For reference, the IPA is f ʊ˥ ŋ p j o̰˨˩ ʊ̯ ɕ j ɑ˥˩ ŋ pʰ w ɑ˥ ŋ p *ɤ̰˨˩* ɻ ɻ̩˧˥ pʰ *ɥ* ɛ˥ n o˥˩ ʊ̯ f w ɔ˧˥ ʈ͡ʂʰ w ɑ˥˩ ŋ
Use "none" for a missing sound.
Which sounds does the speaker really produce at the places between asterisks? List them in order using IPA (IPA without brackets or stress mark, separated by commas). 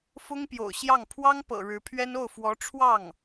ɤ̰˨˩, ɥ